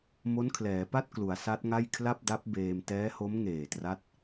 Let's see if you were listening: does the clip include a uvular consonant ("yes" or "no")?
no